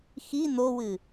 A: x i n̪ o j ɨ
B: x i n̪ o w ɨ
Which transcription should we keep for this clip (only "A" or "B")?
B